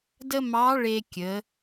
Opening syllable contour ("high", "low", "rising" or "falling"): high